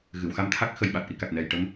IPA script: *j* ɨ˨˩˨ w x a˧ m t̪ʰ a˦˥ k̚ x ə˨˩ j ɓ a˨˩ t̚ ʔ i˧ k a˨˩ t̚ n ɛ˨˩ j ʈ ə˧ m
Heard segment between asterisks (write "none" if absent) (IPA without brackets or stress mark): ɣ